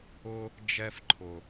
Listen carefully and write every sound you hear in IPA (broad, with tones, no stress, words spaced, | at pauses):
ʊ˧ | d͡ʒɛ˧fǃʰʊ˨